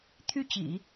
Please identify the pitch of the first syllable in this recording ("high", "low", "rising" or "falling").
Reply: falling